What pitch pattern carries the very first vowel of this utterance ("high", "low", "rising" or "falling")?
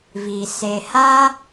low